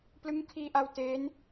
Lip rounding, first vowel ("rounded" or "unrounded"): unrounded